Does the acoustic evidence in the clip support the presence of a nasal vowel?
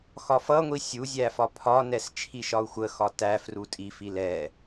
no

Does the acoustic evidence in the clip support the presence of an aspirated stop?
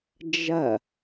no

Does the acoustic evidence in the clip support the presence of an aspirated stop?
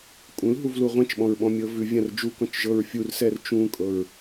no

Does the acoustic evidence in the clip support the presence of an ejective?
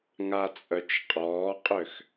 yes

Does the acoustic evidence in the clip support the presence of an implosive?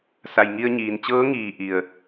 no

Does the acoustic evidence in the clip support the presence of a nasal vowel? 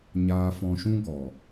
yes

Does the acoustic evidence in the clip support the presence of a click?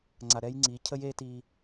yes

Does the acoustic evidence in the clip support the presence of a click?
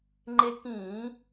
yes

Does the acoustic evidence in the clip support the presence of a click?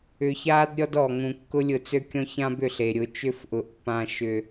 no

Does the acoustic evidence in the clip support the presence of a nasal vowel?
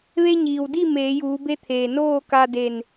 no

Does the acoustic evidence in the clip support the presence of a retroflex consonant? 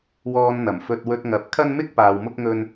no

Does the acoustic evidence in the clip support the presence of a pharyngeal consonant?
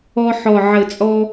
yes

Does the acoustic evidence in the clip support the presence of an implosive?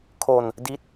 no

